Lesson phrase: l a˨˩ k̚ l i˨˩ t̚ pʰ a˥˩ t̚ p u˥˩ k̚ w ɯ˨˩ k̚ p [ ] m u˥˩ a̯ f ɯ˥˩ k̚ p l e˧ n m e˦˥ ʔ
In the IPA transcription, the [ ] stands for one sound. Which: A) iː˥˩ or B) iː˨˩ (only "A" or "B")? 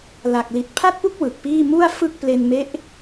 A